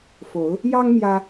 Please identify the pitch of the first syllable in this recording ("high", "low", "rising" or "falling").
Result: rising